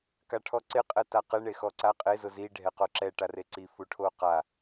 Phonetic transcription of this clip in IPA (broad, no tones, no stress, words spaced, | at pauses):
kaʈʰɔǀɪ qʼɛtaqɪ ɳexɔǀaqʼe zʊzi ɖʱɛqoǁɛ ʈareǀi fuʈʰoqa